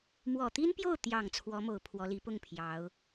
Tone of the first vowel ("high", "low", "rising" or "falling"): low